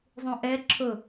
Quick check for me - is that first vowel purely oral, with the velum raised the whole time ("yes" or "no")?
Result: no